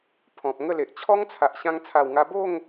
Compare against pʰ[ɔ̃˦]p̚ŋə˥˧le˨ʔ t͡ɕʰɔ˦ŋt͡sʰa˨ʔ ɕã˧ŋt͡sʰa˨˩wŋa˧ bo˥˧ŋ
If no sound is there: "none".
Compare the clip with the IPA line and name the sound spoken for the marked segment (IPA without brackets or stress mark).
ɔ̃˨